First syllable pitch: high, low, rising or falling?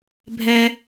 high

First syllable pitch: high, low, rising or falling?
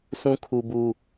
high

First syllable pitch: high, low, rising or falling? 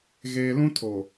low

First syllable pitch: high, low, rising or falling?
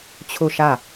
falling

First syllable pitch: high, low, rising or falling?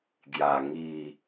low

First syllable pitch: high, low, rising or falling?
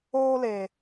high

